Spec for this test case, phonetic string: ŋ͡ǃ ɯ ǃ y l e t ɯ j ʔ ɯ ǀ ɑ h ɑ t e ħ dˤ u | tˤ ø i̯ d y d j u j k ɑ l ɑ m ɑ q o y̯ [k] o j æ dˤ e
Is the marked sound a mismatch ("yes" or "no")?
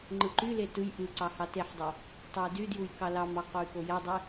no